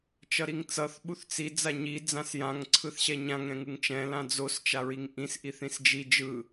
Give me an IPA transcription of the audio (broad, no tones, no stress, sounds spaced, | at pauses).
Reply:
t͡ʃ ʌ ɾ i ŋ t͡s ʌ θ ɓ u θ t͡s i d͡z a ɲ i d͡z ã s j ã ŋ ǀʰ ɯ θ ɕ ɛ ɲ ã ŋ ɾ ɛ̃ ŋ ɯ ŋ t͡ʃ ɛ̃ l ã d͡z o s t͡ʃ a ɹ i ŋ ʔ ĩ s ʔ i θ ĩ s d͡ʒ i d͡ʒ ɯ